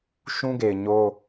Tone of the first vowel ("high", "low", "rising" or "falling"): high